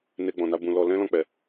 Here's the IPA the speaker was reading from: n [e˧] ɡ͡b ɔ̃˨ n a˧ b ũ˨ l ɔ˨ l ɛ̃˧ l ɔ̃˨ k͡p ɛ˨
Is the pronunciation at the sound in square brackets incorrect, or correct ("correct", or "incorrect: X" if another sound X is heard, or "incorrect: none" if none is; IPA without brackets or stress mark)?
correct